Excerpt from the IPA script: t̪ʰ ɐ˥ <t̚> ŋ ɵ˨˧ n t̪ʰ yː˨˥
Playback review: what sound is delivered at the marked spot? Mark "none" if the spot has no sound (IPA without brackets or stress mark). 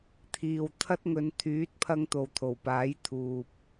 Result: t̚